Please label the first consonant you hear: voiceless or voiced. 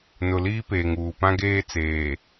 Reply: voiced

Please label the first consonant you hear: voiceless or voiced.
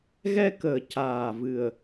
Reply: voiced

